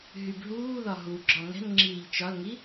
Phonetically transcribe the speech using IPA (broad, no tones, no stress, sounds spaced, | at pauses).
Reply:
ɦ y b ɦ uː ð ɒ ɦ u ɡ͡ǁ ɒ ŋ ɛ̤ n ŋ͡ǁ iː ʎ t͡ʃ ɒ l ŋ i